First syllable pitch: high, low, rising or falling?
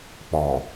low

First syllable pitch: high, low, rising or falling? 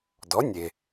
rising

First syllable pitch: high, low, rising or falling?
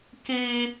high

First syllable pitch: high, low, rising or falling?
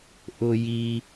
high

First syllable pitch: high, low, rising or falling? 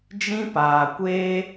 high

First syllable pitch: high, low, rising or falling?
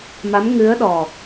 rising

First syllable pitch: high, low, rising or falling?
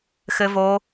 high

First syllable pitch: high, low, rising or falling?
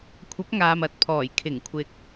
rising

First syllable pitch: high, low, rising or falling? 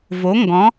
rising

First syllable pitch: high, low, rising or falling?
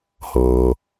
low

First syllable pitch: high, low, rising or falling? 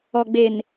low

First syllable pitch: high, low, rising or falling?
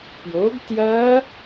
rising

